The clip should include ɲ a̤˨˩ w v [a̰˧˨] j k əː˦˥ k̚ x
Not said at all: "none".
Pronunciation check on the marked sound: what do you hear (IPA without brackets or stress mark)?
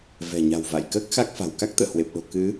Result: a̰˧˨